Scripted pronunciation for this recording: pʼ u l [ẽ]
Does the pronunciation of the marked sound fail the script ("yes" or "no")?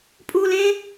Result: no